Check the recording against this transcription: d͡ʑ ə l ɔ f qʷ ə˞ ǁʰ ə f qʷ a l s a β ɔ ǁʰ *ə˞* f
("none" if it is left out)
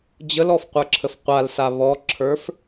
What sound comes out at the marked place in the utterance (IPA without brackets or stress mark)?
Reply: ə˞